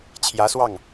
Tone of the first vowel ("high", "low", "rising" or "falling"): rising